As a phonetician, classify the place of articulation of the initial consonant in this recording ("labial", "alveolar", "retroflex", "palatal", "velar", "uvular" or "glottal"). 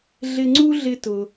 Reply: alveolar